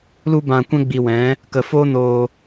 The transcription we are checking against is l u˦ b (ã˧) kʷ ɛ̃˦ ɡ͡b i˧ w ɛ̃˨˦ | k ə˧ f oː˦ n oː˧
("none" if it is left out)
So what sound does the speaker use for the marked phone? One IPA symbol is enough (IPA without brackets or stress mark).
ã˧